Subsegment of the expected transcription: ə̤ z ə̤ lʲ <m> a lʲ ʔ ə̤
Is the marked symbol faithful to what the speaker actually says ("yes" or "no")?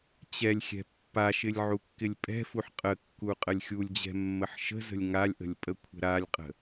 no